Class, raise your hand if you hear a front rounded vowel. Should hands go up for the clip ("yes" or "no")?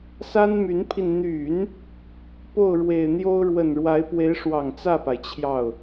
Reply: yes